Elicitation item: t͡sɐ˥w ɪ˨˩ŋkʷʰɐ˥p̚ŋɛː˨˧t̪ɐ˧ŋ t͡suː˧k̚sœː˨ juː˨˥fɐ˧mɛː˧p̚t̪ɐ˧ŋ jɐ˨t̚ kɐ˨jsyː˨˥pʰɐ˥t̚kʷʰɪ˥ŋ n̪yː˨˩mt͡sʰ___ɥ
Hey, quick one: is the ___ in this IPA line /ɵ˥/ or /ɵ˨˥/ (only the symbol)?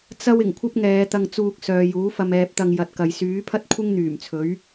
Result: ɵ˨˥